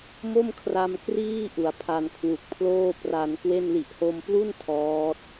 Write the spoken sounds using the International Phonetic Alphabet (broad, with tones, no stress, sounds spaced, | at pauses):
m o˥˩ m kʰ r a˧ m k r iː˥˩ ʔ u˩˦ a̯ pʰ a˧ n kʰ w u˨˩ k̚ pʰ l oː˥˩ p r a˧ n k w e˥˩ n l i˨˩ ʔ h o˧ m p l u˥˩ n tʰ ɔː˦˥ t̚